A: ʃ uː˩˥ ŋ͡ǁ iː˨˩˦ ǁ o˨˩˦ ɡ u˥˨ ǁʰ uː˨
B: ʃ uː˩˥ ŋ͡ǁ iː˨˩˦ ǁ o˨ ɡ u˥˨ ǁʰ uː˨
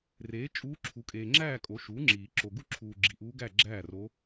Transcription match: B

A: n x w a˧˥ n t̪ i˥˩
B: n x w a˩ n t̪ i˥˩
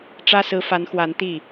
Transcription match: A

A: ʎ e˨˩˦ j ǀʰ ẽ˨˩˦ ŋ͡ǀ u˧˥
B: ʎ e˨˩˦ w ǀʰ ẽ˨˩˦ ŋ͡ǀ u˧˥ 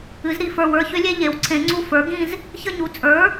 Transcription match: B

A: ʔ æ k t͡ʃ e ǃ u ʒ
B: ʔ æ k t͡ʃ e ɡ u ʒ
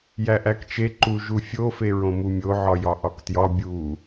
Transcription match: A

